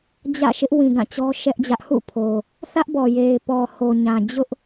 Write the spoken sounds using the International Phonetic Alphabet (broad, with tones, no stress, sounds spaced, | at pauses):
d͡ʑ ä̰˦˨ ʃ ɪ˦ ʔ w ĩ˨ ɡ ã˦˨ t͡ɕ ɔ˦ ʃ ɛ˦ ʔ d͡ʑ ä˦ ʔ h ṵ˦˨ pʰ o˨ | θ ä˦ ʔ b ɔ˨ j e˨ ɪ̯ p ɔ˨ h o˨ ɲ ã˨ d͡ʑ ʊ˦ ʔ